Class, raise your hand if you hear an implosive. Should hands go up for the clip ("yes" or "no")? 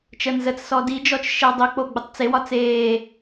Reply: no